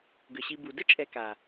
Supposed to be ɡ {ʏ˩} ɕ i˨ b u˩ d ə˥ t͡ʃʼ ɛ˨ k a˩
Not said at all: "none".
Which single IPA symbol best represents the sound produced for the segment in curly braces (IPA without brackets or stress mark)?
ʏ˩